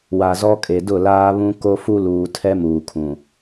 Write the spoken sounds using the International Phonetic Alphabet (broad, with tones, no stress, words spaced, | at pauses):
wa˨zɔ˦kʼe˨ dʊ˦˨laː˦βũ˦ ko˦fu˦luː˨tʰɛ˦ muː˨kʰũ˨